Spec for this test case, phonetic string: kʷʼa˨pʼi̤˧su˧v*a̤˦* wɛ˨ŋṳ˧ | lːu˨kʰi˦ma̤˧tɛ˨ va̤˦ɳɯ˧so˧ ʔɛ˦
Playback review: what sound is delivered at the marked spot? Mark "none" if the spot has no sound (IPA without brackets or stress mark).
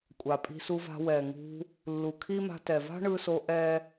a̤˧